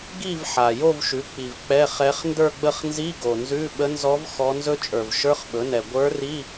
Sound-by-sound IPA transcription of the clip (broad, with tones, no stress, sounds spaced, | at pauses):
ɡ i˥˧ v ħ a˨˩ j o˥˧ v ʃ ʉ˩˥ k͡p i˨˩ v k͡p ɛ˧˥˧ χ ɛ˧˥ χ n d ə˞˥˧ ɡ͡b ə˥˧ χ n z i˧˥˧ ɡ o˨˩ n z ʉ˧˥˧ ɓ ə˧˥ n z ɔ˧˥ v x ɔ˧˥ n z ɵ˥ t͡ʃʼ ə˞˨˩ v ʃ ə˞˧˥˧ χ ɓ ɵ˩˥ n ɛ˨˩ ɡʷ ə˞˧˥ r i˧˥˧